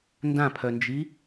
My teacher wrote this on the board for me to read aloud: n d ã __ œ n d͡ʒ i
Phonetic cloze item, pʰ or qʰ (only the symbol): pʰ